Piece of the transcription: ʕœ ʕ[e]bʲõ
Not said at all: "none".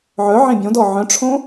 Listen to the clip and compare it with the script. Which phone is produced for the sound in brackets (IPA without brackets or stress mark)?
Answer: ẽ